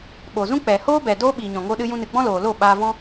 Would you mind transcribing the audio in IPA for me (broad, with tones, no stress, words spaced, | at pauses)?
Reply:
ɓoː˨zũ˦ k͡pɛ˨hoː˦bɛ˨ doː˦ɓiː˨ ɲɔ̃˨ŋo˧ɗɨ˧ jũ˧nɨ˨ɡ͡bɔ̃˦ loː˨lo˦˨ ɓaː˧vɔ̃˦